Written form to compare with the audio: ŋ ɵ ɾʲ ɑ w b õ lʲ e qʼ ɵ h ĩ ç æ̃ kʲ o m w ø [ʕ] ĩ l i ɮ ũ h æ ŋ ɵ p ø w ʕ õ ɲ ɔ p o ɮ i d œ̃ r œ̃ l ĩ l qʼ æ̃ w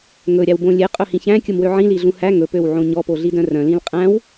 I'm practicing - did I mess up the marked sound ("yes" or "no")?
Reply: no